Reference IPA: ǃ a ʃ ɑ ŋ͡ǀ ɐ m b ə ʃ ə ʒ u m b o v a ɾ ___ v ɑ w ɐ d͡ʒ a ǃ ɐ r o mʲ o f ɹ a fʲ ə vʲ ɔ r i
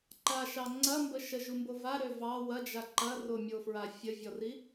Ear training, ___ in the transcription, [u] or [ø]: ø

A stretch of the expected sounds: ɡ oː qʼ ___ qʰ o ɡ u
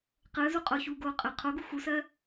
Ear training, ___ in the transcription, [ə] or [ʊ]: ə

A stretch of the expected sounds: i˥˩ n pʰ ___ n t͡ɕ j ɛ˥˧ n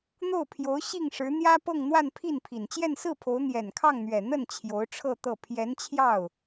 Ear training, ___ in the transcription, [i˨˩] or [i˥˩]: i˨˩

